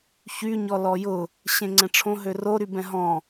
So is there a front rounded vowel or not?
yes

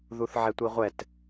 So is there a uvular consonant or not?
yes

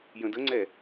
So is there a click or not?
yes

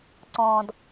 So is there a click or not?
yes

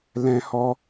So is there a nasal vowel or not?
yes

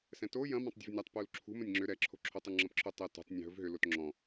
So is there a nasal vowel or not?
yes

